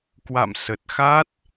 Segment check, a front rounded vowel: absent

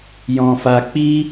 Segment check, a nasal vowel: present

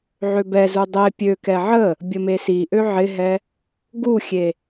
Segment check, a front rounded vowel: present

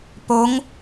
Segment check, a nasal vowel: absent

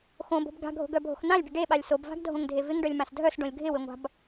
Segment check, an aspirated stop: absent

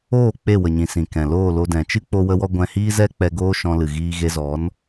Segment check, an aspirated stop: absent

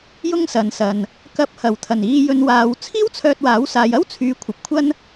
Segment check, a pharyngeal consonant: absent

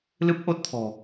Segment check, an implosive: absent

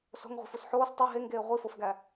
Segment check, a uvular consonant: present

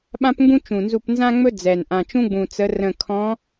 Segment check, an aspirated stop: present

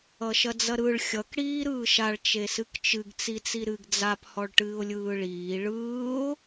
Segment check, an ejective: absent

